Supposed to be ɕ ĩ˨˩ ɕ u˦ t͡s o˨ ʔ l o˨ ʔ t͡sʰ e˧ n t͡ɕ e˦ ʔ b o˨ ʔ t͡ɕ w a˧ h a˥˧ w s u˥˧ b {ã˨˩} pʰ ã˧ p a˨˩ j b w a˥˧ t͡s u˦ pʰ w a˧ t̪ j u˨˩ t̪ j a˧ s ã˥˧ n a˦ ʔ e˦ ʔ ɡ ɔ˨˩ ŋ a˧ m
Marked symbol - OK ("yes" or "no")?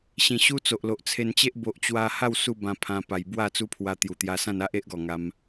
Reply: no